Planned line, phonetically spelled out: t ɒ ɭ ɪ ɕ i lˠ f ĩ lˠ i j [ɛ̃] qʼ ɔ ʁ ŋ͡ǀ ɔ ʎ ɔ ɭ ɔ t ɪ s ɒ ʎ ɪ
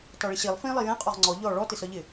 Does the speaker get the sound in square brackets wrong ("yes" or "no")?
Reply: no